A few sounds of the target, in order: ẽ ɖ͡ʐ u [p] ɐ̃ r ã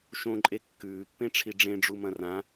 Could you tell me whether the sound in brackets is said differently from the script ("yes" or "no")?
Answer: yes